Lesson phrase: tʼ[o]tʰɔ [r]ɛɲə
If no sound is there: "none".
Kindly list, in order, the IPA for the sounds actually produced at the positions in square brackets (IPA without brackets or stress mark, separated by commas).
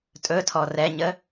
ɵ, r